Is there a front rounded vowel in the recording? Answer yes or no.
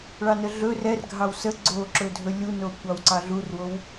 no